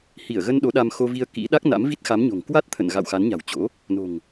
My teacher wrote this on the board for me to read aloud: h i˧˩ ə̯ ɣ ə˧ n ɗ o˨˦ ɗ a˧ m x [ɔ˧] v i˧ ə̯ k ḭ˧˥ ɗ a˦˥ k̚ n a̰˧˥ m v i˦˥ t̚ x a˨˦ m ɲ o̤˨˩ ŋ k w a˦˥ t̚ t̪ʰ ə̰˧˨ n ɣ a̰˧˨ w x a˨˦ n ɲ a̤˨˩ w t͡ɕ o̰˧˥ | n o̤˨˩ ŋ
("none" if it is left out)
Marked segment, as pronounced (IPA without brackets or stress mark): o˧